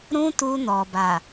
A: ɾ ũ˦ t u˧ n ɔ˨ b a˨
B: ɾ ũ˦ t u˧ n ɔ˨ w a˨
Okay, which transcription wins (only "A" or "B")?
A